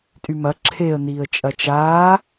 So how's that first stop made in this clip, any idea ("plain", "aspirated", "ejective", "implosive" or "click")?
ejective